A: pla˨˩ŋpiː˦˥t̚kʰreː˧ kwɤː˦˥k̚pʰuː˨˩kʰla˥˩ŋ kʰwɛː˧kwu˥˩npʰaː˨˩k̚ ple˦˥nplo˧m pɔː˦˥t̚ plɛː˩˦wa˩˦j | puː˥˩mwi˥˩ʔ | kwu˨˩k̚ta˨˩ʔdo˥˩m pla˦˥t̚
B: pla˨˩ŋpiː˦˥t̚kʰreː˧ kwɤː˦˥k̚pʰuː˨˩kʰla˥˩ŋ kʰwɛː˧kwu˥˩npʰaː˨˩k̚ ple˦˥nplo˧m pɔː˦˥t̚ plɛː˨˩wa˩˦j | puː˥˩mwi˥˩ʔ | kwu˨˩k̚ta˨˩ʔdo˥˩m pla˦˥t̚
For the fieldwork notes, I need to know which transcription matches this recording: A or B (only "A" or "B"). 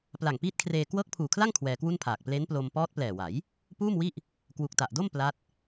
B